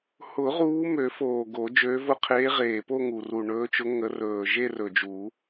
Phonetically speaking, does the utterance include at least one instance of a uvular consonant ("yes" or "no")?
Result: yes